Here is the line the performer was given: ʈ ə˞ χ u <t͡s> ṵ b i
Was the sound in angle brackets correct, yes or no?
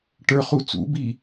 yes